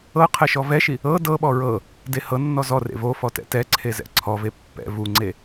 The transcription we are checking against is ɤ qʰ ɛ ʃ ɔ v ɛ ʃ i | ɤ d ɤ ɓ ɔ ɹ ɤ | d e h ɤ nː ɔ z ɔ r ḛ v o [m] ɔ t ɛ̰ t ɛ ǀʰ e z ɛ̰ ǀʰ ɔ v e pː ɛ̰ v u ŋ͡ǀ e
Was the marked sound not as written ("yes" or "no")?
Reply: yes